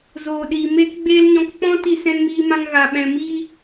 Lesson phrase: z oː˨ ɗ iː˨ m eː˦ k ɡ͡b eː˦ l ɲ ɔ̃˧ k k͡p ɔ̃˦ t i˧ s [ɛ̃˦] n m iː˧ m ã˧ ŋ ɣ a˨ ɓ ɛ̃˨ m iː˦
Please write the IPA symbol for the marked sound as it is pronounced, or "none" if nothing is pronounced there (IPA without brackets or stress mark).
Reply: ɛ̃˧